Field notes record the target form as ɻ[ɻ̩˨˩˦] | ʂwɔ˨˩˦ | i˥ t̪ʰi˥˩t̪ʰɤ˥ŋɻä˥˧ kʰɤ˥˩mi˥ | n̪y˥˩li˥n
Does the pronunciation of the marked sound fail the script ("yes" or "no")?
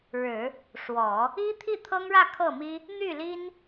no